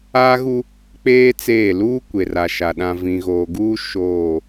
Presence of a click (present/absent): absent